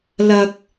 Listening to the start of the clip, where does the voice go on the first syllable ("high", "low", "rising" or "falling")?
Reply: high